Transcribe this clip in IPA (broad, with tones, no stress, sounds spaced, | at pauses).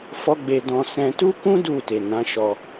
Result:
f ɔ˦ ɡ͡b e˧ d ɔ̃˧ s ɛ̃˧ t u˦ k ũ˦ d u˦˨ t e˨ n ã˨˦ ʃ ɔ˧